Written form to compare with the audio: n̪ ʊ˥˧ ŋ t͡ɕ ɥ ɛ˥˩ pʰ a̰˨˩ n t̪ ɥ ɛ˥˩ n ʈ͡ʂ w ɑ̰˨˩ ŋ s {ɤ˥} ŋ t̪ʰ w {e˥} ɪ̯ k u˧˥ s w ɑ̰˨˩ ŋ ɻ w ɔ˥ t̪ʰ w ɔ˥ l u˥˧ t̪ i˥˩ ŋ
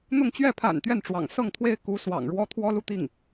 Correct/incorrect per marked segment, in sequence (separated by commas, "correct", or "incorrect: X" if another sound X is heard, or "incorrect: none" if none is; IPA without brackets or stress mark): incorrect: ɤ˥˩, correct